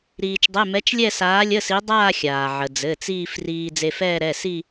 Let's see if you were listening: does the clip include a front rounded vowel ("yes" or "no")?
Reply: no